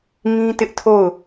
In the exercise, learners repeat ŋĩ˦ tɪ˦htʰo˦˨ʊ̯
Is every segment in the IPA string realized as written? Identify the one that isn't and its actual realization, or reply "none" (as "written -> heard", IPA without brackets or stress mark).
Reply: h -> ʔ